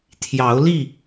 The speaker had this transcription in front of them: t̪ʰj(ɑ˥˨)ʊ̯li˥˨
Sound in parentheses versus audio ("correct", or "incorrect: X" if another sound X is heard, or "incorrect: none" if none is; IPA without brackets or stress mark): incorrect: ɑ˨˦